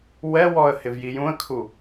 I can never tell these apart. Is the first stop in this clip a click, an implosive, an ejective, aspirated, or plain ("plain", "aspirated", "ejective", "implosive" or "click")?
aspirated